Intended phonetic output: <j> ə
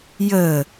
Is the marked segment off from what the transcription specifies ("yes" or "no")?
no